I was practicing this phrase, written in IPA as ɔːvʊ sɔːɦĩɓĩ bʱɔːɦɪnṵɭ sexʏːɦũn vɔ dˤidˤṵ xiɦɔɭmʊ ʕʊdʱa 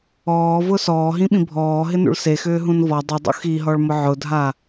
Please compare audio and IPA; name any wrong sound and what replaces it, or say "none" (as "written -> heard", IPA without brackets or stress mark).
none